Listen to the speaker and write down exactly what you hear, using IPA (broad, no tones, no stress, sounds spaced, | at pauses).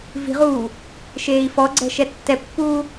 v i̤ ʁ uː | ʃ eː i̯ f ɔ ɡ͡ǀ ɛ̤ ʃ ɛ tː ɛ pː uː